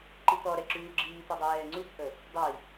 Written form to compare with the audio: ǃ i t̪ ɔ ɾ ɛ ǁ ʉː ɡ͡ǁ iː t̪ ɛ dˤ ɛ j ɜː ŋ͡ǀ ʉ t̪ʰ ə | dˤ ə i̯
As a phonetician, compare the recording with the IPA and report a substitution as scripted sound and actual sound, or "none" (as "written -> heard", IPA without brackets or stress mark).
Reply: ɜː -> ɛː